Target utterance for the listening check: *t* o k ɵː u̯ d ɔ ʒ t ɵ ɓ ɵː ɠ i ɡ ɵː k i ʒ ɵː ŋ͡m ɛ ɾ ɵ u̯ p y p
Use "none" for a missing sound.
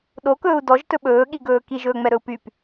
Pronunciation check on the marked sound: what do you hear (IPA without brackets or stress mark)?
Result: ɗ